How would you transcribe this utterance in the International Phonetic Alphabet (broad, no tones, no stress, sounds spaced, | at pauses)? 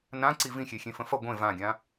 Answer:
n ã ǀ i v ĩ xʲ e xʲ ẽ f ə̃ f ʌ ɡʷ ẽ v ã ɡʲ ã